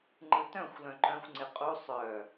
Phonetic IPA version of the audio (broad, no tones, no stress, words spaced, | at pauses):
ŋ͡ǃɯtœ̃xʷ lœ̃ǃœ̃xʷ ŋ͡ǀɪqʼu sˤœ